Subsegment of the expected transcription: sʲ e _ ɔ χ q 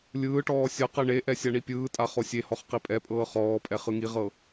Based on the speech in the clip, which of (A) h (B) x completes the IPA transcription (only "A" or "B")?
A